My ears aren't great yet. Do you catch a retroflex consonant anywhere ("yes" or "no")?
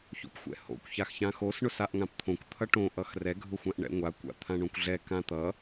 yes